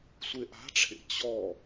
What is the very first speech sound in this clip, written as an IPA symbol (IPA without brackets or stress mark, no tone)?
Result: sʷ